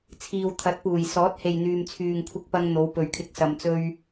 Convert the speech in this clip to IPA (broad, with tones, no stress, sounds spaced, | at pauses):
t͡sʰ iː˨ w t̪ʰ ɐ˨˥ t̚ p uː˨˩ j s ɔː˨˥ t̚ h e˨ j n̪ yː˨ m t͡sʰ yː˨ ŋ kʷʰ ɪ˧ k̚ p ɐ˧ ŋ n̪ o˨˧ w p ɵ˨ ɥ kʰ ɪ˧ k̚ s ɐ˨ m t͡s ɵ˧ ɥ